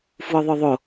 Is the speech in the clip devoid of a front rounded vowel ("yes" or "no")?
no